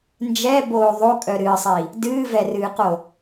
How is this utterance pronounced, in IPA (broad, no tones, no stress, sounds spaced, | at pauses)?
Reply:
n d͡ʒ ɛ b oː ðˤ o kʼ œ ɾ ɨː sˤ i | d ɨː v ɛ r ɨː q o